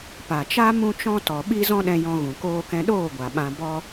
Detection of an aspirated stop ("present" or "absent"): absent